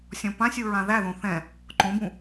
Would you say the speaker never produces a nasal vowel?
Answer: no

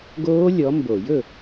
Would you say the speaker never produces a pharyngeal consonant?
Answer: yes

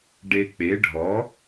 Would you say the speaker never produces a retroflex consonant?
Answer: no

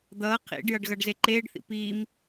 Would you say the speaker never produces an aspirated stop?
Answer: no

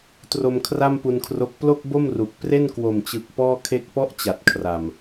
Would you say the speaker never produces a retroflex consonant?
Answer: yes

